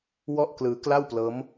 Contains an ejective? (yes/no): no